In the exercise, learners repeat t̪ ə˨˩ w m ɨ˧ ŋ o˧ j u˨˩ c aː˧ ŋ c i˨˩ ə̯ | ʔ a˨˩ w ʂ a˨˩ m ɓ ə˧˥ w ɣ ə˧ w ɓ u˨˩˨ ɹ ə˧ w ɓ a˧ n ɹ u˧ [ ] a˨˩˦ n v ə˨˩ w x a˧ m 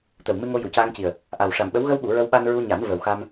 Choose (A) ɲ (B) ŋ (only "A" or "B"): A